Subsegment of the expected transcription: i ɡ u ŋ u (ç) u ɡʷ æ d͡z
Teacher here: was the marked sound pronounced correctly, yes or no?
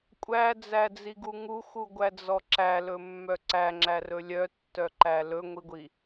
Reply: no